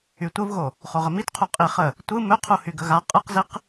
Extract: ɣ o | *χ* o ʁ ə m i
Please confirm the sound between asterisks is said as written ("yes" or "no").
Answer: yes